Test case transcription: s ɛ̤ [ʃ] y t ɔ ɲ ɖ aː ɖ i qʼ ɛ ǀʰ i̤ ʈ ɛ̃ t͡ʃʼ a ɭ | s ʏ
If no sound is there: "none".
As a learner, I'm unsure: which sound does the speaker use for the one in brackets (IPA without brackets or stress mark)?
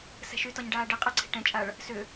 ʃ